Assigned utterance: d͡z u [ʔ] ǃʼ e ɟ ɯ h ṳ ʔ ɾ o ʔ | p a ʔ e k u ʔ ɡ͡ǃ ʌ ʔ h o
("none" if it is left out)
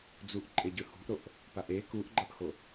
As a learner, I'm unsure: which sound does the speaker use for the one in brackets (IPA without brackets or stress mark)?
ʔ